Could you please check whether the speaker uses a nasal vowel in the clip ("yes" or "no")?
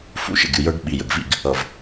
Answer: no